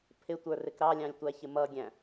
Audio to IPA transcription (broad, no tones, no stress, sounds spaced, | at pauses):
pʰ ɪ tʷ ə˞ r ɪ k ɾ ɑ lʲ ɑ̃ lʲ tʷ æ ç ɪ m ʌ ɡʲ æ̃